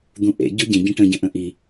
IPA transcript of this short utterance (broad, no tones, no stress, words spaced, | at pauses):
d̪ũʔḛ ɟʊɟẽ ɟə̃ʈə̃ ɟə̃ʔə̃ʔi